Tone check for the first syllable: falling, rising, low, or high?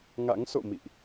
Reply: rising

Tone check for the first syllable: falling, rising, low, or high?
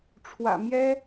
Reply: low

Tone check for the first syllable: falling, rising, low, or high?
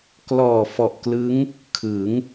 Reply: low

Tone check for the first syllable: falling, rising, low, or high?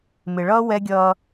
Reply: low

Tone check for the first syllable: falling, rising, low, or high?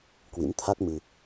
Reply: rising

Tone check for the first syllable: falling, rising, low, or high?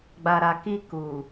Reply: low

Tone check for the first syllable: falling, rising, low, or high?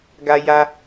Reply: high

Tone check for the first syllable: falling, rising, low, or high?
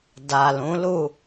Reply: low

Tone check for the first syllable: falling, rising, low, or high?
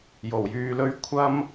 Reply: low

